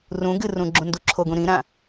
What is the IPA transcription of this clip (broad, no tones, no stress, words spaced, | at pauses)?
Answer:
rũ ɡɨrũ ɡ͡ǁũnduǁʰoɡũ ɾĩɾã